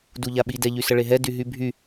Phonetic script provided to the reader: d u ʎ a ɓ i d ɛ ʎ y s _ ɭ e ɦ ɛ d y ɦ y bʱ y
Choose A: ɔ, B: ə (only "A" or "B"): B